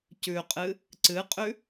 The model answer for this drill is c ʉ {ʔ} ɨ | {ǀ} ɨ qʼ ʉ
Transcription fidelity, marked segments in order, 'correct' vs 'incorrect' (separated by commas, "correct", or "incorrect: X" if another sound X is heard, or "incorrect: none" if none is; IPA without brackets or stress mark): incorrect: qʼ, correct